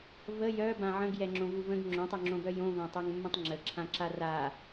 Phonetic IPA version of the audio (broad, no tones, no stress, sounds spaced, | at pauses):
v ə j œ b ã ʕ ə̃ ɡ j ɛ ŋ͡ǁ õ v u v ə̃ ɡ ŋ͡ǁ õ tˤ o ŋ͡ǁ õ b œ j õ v ã tˤ œ ŋ mː ə̃ tˤ ŋ͡ǁ ə ǁʰ ã ǁ a r a